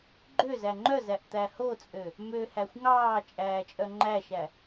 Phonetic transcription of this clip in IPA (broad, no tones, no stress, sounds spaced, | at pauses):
ɡ͡ǃ ø z æ ŋ͡ǃ œ z æ ʔ t̪ æ h o t͡sʼ ø | m ø h æ xʷ ŋ ɑː t͡ʃʼ æː t͡ʃʼ œ ŋ͡ǃ æ ʃ æ